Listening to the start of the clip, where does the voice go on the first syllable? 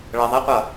low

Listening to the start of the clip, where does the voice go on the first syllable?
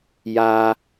high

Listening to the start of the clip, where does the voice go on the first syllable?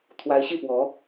rising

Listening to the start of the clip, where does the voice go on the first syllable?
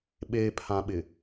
low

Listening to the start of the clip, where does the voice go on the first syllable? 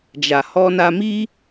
low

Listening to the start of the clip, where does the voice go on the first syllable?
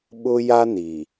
high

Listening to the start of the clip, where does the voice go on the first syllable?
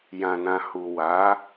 low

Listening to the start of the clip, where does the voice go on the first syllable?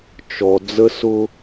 low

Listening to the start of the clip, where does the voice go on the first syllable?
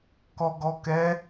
low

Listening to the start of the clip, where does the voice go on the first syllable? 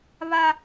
high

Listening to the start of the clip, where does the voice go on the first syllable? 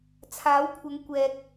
rising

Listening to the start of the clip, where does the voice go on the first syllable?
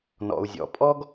low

